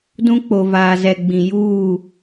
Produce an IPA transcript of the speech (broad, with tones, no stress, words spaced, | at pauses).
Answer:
dũ˦k͡po˨ vaː˨zɛ˨ɡ͡bĩ˨ juː˦˨